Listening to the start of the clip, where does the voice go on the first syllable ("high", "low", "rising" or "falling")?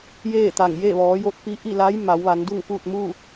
falling